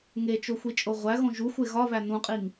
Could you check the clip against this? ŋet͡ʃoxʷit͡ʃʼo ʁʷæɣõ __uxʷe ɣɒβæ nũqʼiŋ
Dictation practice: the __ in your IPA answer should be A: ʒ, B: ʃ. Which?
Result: A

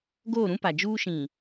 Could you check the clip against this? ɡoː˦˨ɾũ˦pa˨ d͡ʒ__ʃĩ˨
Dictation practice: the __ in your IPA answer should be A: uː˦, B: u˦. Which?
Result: A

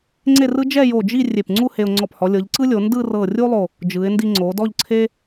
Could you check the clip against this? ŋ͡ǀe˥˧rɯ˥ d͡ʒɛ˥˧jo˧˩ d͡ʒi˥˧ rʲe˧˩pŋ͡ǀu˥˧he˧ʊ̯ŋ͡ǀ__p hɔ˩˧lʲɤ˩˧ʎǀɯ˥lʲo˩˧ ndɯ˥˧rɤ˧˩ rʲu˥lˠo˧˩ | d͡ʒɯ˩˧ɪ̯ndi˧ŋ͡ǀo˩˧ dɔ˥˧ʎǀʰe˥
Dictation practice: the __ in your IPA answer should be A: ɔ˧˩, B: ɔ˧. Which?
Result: A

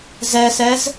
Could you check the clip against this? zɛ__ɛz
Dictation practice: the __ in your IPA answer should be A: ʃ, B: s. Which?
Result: B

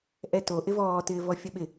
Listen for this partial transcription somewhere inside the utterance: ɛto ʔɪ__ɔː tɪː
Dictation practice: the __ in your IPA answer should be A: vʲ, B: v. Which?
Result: B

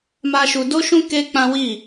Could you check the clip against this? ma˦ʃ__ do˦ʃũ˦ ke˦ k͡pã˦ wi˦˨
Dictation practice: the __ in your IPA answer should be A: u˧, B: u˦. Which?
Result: A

